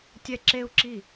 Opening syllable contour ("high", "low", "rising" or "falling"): high